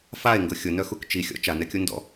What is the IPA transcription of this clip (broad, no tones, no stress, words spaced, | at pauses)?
fae̯ŋɡʊ xʲʊnœxuk t͡ʃixʲɔ̰ t͡ʃanɛkʲu ndɔ̰